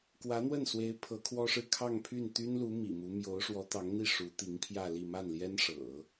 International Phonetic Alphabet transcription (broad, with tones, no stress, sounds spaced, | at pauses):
k w ä˧˥ n̪ w ə˥˩ n s w e˧˥ ɪ̯ pʰ ɤ˧˥ kʰ w ɔ˥ ʂ ɻ̩˥˧ kʰ ɑ˥˧ ŋ pʰ y˥˩ n t̪ y˥ n l u˧˥ m ḭ˨˩ m u˧˥ m j o˧˥ ʊ̯ ʂ w ɔ˧˥ t̪ ɑ˧˥ ŋ n̪ i˥˩ ʂ u˧˥ t̪ i˧˥ ŋ pʰ j ä˥˧ l i˥˧ m a˥˩ n l j ɛ˥ n ʂ ɤ̰˨˩˦